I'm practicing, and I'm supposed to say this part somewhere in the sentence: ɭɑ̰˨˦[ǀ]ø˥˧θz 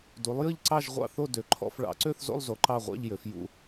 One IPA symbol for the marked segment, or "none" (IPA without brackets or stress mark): ǀ